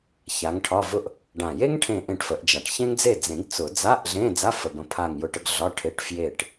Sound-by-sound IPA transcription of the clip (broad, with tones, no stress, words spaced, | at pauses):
ça˨˦ŋʈʰɒ˧˥˧vʊ˥ʔ | ɖã˨˩je˥ŋ ʈʰẽ˥˨ʔẽ˥˨ʈfə˨˩˦ʔd͡ʒa˨˩ʈ çẽ˥ŋd͡ze˥˨ d͡zẽ˨˩˦ɡ t͡sʊ˨˩˦ d͡za˧˥˧ʔ ɮẽ˧˥˧d͡za˧˥˧ fə˨˩bə̃˨˦ pʰa˥˨ŋjʊ˥˨ʈə˥ɡ ɮɒ˧˥˧ʈʰe˧˥˧ʈ fje˥˨ʈ